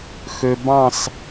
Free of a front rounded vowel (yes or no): no